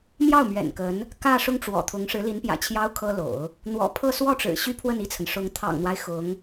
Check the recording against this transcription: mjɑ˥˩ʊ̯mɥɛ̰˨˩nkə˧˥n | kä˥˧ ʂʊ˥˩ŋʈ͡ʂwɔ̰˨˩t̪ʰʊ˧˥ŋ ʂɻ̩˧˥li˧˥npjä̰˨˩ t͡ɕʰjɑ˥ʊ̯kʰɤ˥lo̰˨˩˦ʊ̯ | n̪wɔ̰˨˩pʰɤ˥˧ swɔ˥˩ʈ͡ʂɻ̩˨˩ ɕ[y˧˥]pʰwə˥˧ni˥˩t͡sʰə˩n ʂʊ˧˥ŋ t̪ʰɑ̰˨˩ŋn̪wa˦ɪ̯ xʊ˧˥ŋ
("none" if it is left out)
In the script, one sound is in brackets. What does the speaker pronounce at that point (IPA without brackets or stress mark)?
y˥